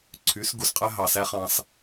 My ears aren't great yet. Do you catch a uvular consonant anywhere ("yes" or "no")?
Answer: yes